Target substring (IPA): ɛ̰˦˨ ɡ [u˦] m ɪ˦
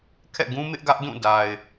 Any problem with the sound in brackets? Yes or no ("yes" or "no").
yes